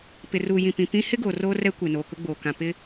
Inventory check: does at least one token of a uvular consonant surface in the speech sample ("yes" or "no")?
no